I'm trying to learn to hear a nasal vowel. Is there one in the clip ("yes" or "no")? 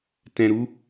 yes